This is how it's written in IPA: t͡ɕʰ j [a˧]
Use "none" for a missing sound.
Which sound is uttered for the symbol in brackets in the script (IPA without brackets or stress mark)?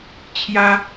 a˧